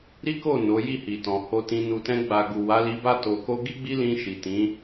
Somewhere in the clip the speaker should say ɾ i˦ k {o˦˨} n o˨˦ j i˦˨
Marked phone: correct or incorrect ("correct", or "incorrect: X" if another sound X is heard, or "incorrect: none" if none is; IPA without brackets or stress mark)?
correct